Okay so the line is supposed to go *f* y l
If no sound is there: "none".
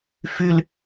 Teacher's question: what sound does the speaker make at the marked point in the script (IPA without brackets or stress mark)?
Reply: f